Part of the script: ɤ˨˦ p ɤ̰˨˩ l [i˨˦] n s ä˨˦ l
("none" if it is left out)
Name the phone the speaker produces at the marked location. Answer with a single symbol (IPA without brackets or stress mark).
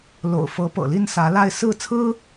i˥˨